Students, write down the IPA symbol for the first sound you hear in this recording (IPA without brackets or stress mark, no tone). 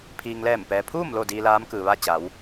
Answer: pʰ